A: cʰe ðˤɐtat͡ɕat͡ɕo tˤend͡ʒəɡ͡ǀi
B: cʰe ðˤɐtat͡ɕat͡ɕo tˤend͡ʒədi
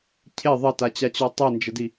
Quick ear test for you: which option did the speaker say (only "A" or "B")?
B